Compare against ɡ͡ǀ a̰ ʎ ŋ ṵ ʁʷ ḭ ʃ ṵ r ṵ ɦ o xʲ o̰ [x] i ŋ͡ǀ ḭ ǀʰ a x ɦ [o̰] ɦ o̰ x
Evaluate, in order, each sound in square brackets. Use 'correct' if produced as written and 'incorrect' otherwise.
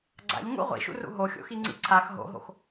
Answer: correct, correct

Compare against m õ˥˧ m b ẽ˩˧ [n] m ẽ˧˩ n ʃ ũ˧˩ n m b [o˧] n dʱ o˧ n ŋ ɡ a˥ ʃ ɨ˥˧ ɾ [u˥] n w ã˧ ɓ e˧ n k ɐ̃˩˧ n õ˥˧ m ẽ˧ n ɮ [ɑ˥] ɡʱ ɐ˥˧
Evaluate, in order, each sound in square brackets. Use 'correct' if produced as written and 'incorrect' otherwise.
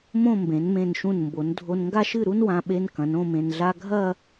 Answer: correct, incorrect: o˩˧, correct, incorrect: a˥

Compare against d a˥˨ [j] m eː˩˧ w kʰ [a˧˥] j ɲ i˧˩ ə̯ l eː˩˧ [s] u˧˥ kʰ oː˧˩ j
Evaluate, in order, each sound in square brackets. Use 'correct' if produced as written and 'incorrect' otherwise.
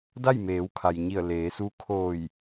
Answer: correct, incorrect: a˩, correct

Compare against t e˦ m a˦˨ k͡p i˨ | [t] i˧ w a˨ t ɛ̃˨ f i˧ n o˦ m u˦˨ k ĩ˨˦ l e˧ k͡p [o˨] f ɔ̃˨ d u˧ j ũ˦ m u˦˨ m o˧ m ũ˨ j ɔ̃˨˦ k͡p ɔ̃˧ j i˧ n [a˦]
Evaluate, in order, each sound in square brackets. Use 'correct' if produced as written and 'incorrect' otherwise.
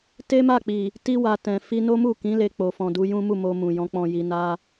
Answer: correct, correct, correct

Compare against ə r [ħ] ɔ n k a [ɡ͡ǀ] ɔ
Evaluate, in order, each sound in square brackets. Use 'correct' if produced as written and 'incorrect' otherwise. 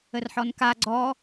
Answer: correct, correct

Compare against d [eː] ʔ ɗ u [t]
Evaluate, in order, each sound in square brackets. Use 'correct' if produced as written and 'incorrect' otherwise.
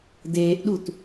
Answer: correct, correct

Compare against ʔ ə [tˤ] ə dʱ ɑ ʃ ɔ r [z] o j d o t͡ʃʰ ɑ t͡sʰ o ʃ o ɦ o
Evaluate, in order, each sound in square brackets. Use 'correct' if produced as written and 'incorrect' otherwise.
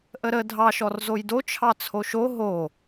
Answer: incorrect: ɾ, correct

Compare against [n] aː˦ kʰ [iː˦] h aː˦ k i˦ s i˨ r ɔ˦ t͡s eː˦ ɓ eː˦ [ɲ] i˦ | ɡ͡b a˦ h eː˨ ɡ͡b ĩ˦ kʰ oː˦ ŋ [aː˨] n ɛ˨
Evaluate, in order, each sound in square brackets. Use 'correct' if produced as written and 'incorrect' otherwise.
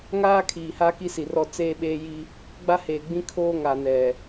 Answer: incorrect: ŋ, incorrect: iː˨, incorrect: j, incorrect: a˨

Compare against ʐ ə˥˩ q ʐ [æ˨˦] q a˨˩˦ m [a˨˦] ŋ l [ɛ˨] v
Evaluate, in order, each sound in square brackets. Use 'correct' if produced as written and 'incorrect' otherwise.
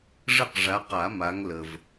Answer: incorrect: a˨˦, correct, incorrect: ə˨

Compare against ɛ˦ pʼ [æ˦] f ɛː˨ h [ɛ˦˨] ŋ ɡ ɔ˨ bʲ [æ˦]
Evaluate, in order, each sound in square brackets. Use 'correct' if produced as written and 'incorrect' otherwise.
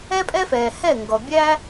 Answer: incorrect: ɛ˦, correct, correct

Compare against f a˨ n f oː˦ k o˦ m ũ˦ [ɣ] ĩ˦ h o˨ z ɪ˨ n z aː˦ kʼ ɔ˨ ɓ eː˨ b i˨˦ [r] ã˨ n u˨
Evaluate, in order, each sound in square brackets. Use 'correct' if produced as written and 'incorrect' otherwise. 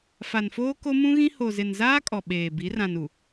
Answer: correct, correct

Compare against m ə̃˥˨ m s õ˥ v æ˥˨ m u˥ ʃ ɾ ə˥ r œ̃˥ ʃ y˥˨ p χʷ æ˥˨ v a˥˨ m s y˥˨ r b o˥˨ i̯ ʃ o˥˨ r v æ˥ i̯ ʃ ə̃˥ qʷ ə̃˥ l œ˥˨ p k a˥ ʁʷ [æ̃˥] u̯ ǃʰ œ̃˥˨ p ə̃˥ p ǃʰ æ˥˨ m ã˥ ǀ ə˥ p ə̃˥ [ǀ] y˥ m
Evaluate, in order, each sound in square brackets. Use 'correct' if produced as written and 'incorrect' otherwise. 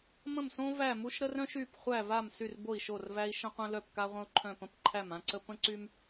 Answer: incorrect: ə̃˥, correct

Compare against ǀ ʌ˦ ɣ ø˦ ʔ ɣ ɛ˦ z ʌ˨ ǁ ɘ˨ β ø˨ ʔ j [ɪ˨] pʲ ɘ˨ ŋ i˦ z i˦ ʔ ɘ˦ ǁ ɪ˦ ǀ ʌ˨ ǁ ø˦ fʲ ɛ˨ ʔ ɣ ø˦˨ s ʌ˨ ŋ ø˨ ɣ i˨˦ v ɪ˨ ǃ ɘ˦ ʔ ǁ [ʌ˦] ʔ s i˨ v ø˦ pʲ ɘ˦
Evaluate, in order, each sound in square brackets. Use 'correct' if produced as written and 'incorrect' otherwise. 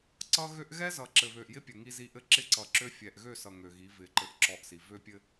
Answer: incorrect: ɪ˦, incorrect: ɔ˦

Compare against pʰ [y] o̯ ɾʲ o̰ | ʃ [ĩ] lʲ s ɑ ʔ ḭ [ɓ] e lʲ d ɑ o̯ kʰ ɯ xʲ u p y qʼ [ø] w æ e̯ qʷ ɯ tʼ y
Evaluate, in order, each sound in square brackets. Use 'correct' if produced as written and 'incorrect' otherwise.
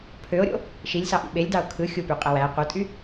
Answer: incorrect: ø, incorrect: i, correct, incorrect: e

